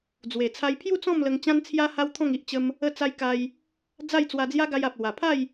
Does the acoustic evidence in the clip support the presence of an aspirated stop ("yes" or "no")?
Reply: yes